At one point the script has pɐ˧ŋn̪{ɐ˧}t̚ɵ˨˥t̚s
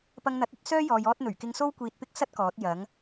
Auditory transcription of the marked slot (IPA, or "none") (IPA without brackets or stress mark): ɐ˨˥